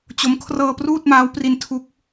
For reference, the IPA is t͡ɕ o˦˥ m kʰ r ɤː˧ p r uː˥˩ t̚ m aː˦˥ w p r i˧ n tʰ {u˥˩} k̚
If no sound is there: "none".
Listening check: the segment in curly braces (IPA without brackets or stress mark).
u˦˥